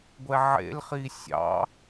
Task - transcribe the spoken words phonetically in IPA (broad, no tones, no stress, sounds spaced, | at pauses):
ɡʷ ɛ ʕ ḛ l χ i sʲ ɑ̰